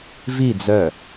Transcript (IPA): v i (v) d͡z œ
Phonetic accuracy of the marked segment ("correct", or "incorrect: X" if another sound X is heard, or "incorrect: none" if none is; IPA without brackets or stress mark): incorrect: none